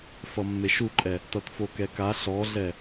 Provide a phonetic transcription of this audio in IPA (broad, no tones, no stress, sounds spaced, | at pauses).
f ʌ mː e ʃ u ǃʼ ɛ | t ʌ t f o k ɛ k a ɬ ɔ ɮ ɛ